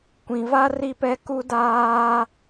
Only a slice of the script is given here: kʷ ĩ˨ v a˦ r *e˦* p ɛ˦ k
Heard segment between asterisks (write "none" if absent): i˦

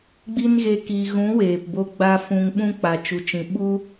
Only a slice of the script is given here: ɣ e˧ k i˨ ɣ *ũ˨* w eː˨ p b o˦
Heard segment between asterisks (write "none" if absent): ũ˨˦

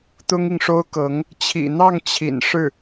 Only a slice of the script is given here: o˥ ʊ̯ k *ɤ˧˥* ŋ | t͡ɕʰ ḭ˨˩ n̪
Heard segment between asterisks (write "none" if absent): ɤ˧˥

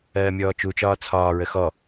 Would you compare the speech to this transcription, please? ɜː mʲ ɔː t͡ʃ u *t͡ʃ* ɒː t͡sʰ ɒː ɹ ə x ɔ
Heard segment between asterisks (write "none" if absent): t͡ʃ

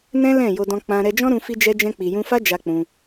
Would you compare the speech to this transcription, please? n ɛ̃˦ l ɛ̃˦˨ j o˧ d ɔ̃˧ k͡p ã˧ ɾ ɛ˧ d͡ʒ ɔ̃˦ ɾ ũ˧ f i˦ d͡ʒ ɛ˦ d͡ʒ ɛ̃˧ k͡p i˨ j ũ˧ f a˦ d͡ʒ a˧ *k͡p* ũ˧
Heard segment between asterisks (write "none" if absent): k͡p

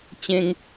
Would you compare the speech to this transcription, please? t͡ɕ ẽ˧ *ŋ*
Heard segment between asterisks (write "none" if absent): ŋ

